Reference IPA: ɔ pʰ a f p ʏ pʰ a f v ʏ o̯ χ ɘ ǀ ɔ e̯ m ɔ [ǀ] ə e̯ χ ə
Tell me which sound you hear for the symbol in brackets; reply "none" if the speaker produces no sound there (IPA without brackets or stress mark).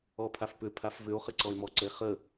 ǀ